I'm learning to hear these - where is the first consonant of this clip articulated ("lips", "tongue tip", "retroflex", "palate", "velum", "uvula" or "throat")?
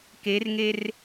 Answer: velum